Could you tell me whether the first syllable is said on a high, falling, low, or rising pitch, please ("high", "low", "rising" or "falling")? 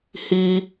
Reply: high